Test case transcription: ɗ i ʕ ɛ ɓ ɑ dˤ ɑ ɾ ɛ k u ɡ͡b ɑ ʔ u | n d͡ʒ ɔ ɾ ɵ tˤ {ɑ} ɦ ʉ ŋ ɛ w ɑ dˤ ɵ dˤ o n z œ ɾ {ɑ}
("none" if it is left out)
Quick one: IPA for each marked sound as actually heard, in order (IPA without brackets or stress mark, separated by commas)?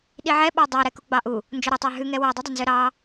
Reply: ɑ, ɑ